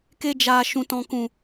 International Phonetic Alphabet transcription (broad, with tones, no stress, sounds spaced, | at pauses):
k e˧ d͡ʒ aː˨ ʃ ũ˨ t ɔ̃˨ k ũ˨